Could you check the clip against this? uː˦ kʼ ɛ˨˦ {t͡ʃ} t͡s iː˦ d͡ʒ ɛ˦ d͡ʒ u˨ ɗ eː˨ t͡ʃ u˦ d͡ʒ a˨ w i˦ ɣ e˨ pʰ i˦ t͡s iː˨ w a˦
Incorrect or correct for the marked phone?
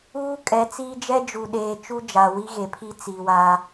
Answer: incorrect: none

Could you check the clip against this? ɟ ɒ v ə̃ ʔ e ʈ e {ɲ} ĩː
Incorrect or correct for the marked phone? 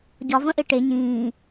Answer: correct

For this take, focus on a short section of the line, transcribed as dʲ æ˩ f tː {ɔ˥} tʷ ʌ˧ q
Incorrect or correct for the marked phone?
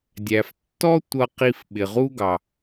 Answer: correct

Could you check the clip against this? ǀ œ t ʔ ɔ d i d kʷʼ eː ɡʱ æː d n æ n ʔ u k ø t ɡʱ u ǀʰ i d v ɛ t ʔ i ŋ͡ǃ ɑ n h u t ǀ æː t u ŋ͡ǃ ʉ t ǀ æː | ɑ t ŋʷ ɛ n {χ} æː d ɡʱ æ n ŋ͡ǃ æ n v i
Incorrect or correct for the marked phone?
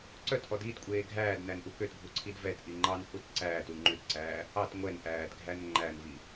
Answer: incorrect: ʔ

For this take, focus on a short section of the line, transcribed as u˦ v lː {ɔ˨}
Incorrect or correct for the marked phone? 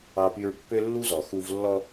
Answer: incorrect: ɔ˦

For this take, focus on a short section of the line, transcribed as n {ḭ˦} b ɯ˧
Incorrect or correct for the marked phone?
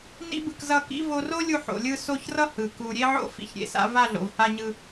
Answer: correct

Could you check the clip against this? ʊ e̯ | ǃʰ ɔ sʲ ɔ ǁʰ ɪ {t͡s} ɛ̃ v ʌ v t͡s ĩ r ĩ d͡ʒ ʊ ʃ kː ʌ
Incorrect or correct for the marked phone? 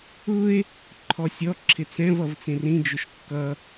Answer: correct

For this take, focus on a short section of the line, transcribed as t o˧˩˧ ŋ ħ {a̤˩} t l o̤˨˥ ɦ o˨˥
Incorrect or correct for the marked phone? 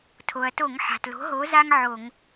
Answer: correct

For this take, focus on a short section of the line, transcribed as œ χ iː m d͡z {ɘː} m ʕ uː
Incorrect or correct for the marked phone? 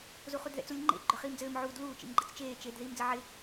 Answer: correct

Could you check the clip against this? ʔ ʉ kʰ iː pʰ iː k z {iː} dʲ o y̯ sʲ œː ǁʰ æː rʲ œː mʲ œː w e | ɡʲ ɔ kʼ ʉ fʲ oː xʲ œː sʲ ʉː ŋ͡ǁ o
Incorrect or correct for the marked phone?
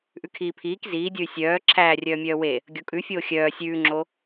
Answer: correct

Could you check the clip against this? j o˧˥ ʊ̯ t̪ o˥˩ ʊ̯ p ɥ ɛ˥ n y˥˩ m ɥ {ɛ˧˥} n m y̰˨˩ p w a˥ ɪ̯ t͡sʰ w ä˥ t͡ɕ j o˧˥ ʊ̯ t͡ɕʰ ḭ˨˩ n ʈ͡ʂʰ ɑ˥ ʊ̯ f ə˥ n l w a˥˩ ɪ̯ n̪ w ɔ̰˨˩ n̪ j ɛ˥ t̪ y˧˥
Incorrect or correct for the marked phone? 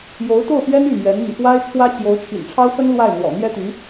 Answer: correct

